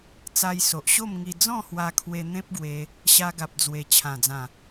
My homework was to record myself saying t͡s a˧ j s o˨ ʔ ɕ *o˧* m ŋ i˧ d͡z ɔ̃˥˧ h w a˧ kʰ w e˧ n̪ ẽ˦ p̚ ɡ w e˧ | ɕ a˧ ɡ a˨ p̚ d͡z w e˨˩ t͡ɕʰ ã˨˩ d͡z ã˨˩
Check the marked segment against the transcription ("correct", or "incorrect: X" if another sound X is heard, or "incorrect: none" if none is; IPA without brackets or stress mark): incorrect: o˥˧